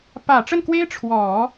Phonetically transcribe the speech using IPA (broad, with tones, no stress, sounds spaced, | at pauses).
p ä˨˩ ʈ͡ʂ ə˥˩ n k w e˥ ɪ̯ ʈ͡ʂʰ w ɔ˨˩˦